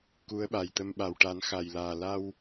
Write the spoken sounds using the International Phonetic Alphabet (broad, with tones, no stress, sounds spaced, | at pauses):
k u˧˥ ə̯ ɓ a˨˩ j t̪ ə˧ m ɓ a˨˩ w ʈ a˨˩˦ n x a˨˩ j l aː˨˩ l a˧ w